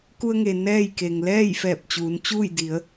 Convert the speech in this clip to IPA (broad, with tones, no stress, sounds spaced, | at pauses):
k u˧ ə̯ ŋ e˩ n ɛː˥˨ j k e˩ ŋ l ɛː˥˨ j f ɛː˧˩ p̚ t͡ɕ uː˩˧ n t͡ɕ uː˥˨ j d i˩˧ ə̯